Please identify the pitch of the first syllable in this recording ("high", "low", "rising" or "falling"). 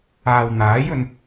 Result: low